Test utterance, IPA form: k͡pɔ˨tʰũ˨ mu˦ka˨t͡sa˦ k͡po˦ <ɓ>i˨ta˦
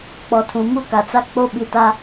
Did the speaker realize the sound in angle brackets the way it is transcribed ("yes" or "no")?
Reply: yes